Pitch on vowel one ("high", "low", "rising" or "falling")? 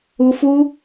high